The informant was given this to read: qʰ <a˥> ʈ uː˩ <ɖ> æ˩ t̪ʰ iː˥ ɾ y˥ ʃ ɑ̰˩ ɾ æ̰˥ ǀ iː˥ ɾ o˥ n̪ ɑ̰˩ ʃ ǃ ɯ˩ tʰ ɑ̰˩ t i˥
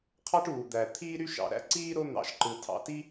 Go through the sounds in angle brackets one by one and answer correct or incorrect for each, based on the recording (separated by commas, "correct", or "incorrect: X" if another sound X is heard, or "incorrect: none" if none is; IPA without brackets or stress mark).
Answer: incorrect: ɑ˥, incorrect: d̪